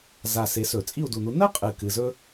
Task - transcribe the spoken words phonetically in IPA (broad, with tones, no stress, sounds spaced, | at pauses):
z a˨˩ s e˨˥ s ɵ˧˩˧ t͡sʼ i˥˨ u̯ d u˨˩ n u˨˥ n ɜ˥ qʼ ɨ˨˩ k ɨ˨˩ z ɵ˥